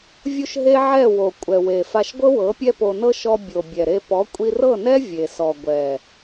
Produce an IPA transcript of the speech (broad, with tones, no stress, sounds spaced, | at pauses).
vʲ u˦ ʃ ɦ e˦ ʕ ɛ˦˨ w o˨ kʷʼ ɛ˨ w e˨ f a˧ ʃ ɡʷ ɤ˦ w ɤ˨˦ pʲ ɛ˦ p o˧ n ɤ˦ ʃ ɔ˧ bʲ o˨ bʲ ɛ˨ ɾ e˧ p ɔ˨˦ kʷʼ i˧ r ɤ˦˨ n ɛ˦ vʲ e˨ s ɔ˨ ɡʷ ɛ˨